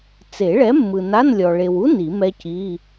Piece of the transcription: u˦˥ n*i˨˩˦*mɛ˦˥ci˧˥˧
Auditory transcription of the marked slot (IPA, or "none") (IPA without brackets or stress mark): i˨˩˦